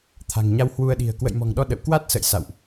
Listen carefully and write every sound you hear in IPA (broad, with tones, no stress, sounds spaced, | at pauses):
t̪ʰ a̤˨˩ ŋ ɲ a˧ w h w u˧ ə̯ ɗ i̤˨˩ ə̯ k w ə̰˧˨ j m ɔ̤˨˩ ŋ ɗ ɔ˧ ɗ ə̰˧˨ w k w a˦˥ t̚ s ə̰˧˨ j s a̰˧˨ w ʔ